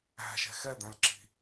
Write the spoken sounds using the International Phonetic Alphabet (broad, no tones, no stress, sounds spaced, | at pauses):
æ̤ ʃ ɛ̤ x ɛ d̪ æ̃ l ǁ i̤